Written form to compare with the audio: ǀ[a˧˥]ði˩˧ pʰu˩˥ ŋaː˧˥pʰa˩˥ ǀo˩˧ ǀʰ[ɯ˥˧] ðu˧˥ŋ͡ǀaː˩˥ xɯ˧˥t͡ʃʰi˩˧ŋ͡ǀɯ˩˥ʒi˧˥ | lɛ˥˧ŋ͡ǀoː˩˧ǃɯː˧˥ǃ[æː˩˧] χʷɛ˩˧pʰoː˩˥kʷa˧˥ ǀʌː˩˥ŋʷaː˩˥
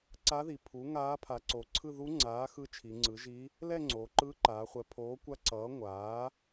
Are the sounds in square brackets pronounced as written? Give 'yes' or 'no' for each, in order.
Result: yes, yes, no

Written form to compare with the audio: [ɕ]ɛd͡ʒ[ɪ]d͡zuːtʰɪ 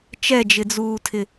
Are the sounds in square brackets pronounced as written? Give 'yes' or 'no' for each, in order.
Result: no, yes

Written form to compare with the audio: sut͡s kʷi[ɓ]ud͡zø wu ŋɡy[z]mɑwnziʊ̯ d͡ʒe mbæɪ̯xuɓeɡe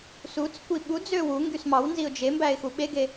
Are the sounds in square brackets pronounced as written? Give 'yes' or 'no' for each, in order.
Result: yes, no

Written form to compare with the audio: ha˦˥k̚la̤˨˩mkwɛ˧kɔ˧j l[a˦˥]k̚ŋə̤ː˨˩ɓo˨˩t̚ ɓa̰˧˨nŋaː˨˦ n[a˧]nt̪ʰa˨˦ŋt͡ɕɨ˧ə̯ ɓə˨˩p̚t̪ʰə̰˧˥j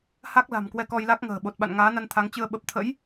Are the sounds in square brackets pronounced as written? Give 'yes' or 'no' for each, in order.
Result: yes, yes

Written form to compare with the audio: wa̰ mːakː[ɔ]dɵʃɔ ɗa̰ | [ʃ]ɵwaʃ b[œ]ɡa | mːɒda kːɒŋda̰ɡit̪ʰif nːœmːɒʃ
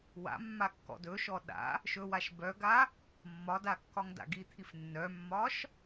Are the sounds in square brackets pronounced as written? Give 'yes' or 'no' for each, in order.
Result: no, yes, yes

